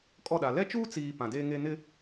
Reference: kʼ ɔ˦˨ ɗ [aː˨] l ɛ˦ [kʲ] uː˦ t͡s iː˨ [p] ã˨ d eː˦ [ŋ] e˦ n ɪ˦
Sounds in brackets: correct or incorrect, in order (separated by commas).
incorrect, incorrect, correct, correct